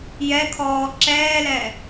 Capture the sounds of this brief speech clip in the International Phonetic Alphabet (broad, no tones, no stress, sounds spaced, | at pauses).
j ɛ kʰ ɔː ǁ ɛː l ɛ